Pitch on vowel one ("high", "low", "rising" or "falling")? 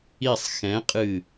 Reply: falling